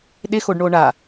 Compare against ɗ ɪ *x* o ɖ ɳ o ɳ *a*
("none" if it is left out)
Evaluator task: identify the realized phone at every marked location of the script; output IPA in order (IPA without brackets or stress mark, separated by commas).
x, a